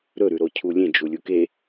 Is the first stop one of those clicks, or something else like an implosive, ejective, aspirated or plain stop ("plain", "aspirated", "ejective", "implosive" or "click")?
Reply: aspirated